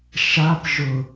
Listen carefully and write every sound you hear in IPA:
ʃap ʒʊ

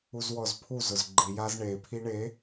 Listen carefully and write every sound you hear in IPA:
uzwɔzpʰuzʊz ɡ͡ǃi jazɳepʰi ɳe

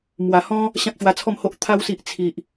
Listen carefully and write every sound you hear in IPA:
mwa˨˩hɔ̃˦ | ɕã˦k̚ɕwa˧t͡sʰɔ˥˧mho˦ʔ t̪ʰa˧wsi˨ʔ t͡sʰi˨ʔ

